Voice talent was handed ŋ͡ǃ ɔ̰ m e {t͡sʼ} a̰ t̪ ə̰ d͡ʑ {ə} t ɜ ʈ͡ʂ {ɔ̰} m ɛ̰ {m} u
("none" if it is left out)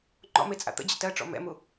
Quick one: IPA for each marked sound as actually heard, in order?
t͡sʼ, ə̰, ɔ̰, m

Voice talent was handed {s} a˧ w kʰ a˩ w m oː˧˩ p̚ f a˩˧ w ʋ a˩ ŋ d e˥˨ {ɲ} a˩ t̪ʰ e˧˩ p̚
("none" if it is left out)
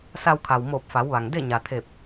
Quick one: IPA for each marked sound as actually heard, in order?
s, ɲ

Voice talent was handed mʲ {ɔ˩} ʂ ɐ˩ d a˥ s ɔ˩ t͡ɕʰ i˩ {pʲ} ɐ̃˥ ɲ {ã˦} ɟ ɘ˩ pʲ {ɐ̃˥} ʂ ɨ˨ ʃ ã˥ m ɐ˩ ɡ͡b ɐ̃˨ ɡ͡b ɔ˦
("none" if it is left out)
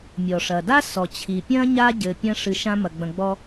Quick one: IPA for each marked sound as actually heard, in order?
ɔ˩, pʲ, a˦, ɐ̃˥

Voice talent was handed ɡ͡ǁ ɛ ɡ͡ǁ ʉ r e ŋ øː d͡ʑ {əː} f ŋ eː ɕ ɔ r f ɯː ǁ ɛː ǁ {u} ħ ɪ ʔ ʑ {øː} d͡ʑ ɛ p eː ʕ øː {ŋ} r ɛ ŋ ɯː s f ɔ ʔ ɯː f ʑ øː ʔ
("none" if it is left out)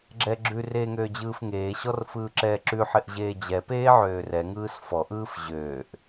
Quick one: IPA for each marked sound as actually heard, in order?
ɯː, ʉ, eː, none

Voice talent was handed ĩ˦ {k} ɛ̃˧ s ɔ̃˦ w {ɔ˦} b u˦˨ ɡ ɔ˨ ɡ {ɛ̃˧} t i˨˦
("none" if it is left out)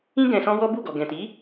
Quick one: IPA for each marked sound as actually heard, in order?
ɡ, ɔ˦, ɛ̃˨

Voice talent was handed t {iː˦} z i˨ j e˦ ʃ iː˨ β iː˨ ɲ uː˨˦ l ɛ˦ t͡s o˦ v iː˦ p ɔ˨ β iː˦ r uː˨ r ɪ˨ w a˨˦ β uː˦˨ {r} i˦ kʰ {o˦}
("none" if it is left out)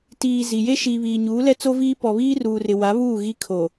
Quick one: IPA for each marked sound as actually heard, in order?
iː˨, ɣ, o˨

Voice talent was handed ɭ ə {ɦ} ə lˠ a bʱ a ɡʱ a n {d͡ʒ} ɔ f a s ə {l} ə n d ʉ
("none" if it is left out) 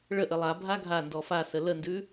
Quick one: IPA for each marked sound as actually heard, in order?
ʔ, d, l

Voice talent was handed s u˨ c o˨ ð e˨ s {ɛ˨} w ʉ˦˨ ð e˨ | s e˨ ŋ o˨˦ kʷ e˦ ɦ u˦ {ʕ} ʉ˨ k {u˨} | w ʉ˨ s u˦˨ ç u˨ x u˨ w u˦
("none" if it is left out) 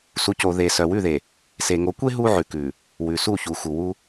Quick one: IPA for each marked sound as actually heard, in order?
œ˨, ʕ, ʉ˨

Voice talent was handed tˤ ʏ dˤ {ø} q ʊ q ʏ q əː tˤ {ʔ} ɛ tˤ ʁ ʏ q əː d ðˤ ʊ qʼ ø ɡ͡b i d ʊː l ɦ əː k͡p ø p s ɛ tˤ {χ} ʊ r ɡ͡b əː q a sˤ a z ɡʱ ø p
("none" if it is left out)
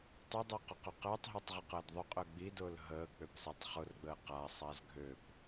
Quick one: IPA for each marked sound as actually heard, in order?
ø, ɦ, χ

